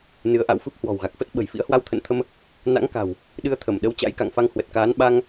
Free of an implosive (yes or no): no